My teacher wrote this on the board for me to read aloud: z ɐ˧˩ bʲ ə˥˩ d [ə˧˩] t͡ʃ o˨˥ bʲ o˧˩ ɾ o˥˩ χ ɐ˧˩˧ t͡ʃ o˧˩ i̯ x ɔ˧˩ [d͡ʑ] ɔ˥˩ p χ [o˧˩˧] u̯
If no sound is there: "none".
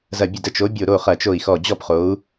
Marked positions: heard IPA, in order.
ə˥˩, d͡ʑ, o˨˥

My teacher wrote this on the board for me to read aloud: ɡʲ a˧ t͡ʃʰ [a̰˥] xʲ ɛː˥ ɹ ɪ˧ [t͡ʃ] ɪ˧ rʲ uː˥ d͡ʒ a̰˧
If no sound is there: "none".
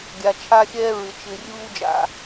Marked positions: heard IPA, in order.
a˥, t͡ʃ

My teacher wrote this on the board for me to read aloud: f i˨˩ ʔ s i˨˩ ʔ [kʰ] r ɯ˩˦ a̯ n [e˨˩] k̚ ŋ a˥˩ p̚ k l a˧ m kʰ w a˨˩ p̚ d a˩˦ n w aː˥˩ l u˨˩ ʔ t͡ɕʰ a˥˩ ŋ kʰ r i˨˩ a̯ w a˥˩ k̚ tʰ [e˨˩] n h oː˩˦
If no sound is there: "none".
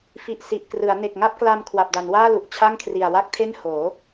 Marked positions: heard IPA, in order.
k, e˨˩, e˥˩

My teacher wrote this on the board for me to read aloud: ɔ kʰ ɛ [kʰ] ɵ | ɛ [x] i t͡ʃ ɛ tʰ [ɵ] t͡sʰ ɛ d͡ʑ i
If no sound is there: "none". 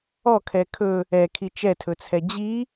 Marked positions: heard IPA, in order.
kʰ, kʰ, ɵ

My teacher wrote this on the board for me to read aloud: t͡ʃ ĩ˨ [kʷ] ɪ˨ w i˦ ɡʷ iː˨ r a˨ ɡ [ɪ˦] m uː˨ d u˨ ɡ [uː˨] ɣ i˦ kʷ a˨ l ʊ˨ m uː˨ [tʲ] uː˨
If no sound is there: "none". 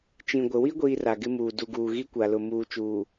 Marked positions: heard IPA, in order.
ɡʷ, ɪ˦, uː˨, t͡ʃ

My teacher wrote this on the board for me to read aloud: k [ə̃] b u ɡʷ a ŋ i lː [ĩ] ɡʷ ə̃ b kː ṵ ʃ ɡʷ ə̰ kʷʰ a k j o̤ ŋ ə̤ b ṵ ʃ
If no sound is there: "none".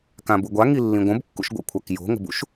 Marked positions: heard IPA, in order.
ã, ĩ

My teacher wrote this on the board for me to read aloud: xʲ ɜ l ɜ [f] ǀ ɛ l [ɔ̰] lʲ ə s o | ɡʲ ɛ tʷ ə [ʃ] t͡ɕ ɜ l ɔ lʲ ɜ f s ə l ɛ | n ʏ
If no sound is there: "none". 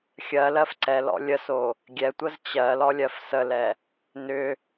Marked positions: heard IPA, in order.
f, ɔ̰, z

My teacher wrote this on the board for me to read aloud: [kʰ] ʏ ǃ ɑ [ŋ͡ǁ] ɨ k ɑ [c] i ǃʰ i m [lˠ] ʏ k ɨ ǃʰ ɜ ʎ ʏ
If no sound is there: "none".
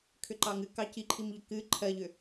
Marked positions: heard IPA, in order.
kʰ, ŋ, c, ʎ

